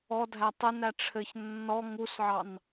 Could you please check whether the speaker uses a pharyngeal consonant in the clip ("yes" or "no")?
yes